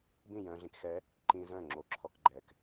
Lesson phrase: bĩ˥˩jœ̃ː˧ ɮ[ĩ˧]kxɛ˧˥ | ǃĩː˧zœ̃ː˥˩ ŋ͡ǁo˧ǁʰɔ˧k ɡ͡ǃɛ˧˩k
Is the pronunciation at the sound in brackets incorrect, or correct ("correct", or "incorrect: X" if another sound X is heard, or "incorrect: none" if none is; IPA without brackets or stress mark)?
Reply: correct